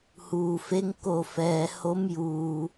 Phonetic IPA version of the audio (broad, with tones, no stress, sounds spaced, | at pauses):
h uː˩ f e˧˥ ŋ k o˧˩ f ɛː˩ h o˧˥ m j uː˩